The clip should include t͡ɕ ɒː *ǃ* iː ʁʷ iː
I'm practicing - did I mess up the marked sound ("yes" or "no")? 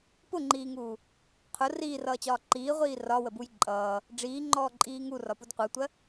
no